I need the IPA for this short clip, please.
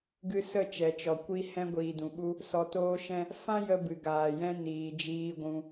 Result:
ɡ ɨ˧ s ə˦˨ t͡ʃ ɛ˨ t͡ʃ ɔ˨ kʷ i˧ h ɛ̃˧ ɡʷ iː˨ d ũ˨ ɓ u˧ | s ɔ˧ t oː˦ ʃ ɛ̃˦ | f ã˦ j ə˧ b ɨ˨ ɡ aː˨ j ɛ̃˧ n iː˨ d͡ʒ iː˧ ɡʷ ũ˧

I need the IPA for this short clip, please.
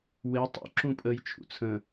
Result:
w e tˤ ṵ ǁ ũ pʼ ə j t͡ʃʰ ṵ t͡sʰ ə̃

